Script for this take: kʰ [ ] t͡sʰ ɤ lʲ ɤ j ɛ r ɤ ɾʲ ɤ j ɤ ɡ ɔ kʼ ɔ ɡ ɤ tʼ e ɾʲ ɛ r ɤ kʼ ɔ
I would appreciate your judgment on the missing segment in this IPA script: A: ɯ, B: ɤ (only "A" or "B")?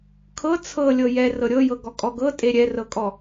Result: B